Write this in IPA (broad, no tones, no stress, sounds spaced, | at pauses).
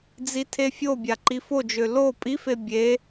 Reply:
d͡z i tʰ e fʲ o bʲ a ǃ i f o d͡ʒ ø l o pʼ i f e bʲ e